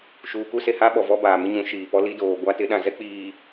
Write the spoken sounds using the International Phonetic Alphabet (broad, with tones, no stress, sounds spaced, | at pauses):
ʃ uː˨ k u˦ s e˨ h a˦ ɓ ɔ˨ v ɔ˦ b aː˨ m ɪ˦ ɲ ũ˨˦ ʃ iː˨ p ɔ˦ l i˦ d oː˨ ɡʷ a˦ t ɪ˨˦ ɗ ã˨ z ɛ˦ k͡p iː˨